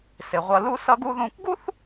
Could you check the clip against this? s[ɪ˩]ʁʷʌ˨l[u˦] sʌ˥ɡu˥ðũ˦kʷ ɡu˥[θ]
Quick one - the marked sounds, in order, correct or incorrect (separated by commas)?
correct, correct, correct